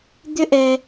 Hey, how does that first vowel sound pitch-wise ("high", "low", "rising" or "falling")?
high